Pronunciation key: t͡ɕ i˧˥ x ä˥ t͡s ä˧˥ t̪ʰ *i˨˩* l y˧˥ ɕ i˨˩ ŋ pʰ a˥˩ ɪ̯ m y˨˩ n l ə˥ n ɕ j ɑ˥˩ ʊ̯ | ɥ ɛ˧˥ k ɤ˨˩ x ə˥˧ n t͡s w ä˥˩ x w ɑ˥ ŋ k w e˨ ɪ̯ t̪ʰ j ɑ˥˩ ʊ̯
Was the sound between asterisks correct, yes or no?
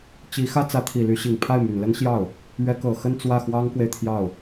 yes